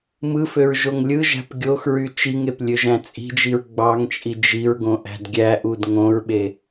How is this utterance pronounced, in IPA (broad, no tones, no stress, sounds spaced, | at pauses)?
m ɯ f ø ɹ ʒ o ŋ lʲ ɯ ʒ æ̤ p ɡʲ o x ɹ y t͡ʃ i ŋ e p lʲ ø ʒ æ̃ t͡sʼ i̤ d͡ʒ i ɹ ɡ͡b ɑ ŋ t͡ʃʼ i d͡ʒ i ɹ ɡ õ ʔ æ̤ d ɡʲ æ ʔ u d ŋ õ ɹ ɓ e